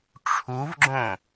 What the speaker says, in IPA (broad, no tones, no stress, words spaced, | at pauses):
ʈ͡ʂʰuvɡ͡ǁõ